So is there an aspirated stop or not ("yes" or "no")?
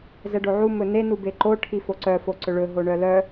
yes